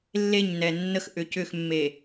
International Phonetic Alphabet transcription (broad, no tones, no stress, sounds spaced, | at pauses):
lː e ɲ n ɛ nː ə x ʔ ʏ c ʏ x mː e